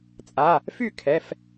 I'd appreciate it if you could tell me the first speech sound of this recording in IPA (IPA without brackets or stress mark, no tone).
t͡sʼ